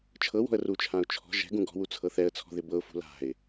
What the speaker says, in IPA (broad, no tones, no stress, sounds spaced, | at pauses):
t͡ʃʰ ɤ w ɔ̤ ə̯ r u t͡ʃʰ ã ʊ̯ t͡ʃʰ ɔ̤ ʒ ɛ̤ ɡ ũ ɡ ɔ̤ w u t͡sʰ ɤ θ ɛ ə̯ t͡sʰ ɔ̤ ð ɪ b ɤ ʊ̯ f ṳ l a̤ ɪ̯